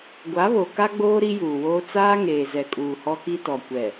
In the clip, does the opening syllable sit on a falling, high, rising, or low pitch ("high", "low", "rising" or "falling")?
rising